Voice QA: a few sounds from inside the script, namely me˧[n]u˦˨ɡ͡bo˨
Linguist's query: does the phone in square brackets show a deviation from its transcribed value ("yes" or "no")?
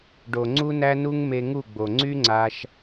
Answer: yes